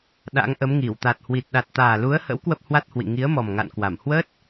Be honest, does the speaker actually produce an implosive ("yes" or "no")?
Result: yes